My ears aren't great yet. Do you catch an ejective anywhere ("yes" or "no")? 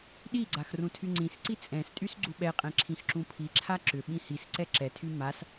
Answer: yes